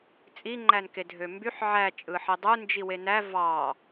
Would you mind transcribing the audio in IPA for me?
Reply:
t͡sʼ i ŋ͡ǃ æ n k e dʱ ø m b y ħ ʕ æ t͡ʃʼ ɯ ħ i dˤ u n d͡ʒ i w e n æ v ɑ

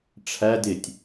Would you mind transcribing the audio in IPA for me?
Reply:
ʈ͡ʂʰ æ d ɪ tʲ

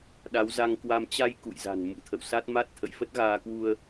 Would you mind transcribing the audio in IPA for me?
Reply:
ɗ a˨˦ w z a˧ ŋ k w a˧ m t͡ɕ a˧ j k ṵ˧˨ j z a̤˨˩ n m ṵ˧˥ t̪ʰ ə̰˧˨ w s a˦˥ t̚ m a˦˥ t̚ t̪ʰ ə̰˧˨ j f ə˦˥ t̚ ɣ aː˧ k w u˧ ə̯

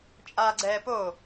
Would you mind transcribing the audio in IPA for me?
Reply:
t͡ʃʼ aː ɡ͡ǀ ɛː p o

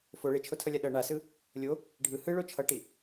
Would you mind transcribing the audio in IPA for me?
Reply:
f o ɭ e t͡ʃʰ o tʰ ʌ lʲ a ɗ ʌ ɳ a s ɯ | lʲ o | ɖʱ ɯ h ɯ ɭ o t͡ʃʰ ʌ ʈ i

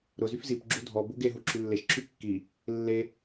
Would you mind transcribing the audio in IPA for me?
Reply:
ɾ ʊ z y f z i p ɡ͡ǁ u dʱ ɔ b u ɡ e ɦ u ǁʰ y lː e ʃ ǁʰ y kː i | lː e

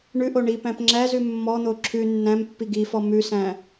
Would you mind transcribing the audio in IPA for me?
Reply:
ɳ ʉ ʔ o ɳ i p æ̃ p ŋ͡ǁ æ z ʉ mː ɔ n̪ o ǁʰ ʉ nː æ̃ m pː i ɡ i f ɔ m ʉ s æ̃

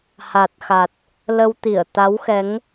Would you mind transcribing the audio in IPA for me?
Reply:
h a˨˩ t̚ x a˨˩ t̚ | l ə˧ w t̪ i˧˩ ə̯ t̪ a˨˦ w x ɛ˨˦ ŋ

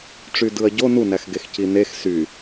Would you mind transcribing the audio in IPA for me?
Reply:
ʈ͡ʂ y d ɯ ɐ̯ ɟ o n u n æ x ɡ e x c i n e x s y

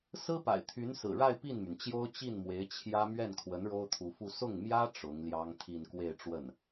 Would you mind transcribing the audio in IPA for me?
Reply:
s ɹ̩˥ p a̰˨˩ ɪ̯ t̪ʰ y˧˥ n s ɹ̩˨˩ ɻ a˥˧ ɪ̯ p i˥˩ n m y˩ n t͡ɕ j o˥ ʊ̯ t͡ɕ i˥˩ n m w e˧˥ ɪ̯ t͡ɕʰ j ä˥ m ɥ ɛ˥˩ n kʰ w ə˧˥ n ɻ o˥ ʊ̯ t̪ʰ u˧˥ f u˥˧ s ʊ˥˩ ŋ m j ä˥ ʈ͡ʂ ʊ˧˥ ŋ l j ɑ˥ ŋ t̪ʰ i˥˧ n k w e˥˧ ɪ̯ ʈ͡ʂ w ə˥˩ n

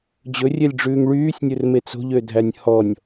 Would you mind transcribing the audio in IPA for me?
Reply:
d͡ʑ ɵ rʲ e lʲ ɖ͡ʐ ʉː ŋ ɭ yː sʲ nʲ ɵ r m e t͡s o̤ ʎ ø dʱ æ nʲ h ɔ nʲ

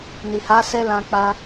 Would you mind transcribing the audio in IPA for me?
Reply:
n i˨ h a˨˦ s ɛ˧ l ã˧ k͡p a˧

